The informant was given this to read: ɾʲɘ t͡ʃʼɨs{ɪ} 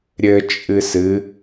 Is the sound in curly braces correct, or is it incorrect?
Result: incorrect